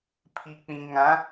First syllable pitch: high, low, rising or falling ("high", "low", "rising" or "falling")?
low